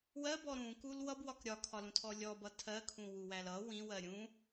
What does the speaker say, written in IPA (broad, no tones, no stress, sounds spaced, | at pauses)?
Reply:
w ɜ b ɔ ɾ ũ k u l w ʌ b w ɒ k ɾʲ ɒ kʰ ɒ l ũ tʰ ɔ lʲ ɔ b ʌ tʰ ɜ kʰ ũ w u w æ l ʌ w ĩ w ɜ ɾʲ ũ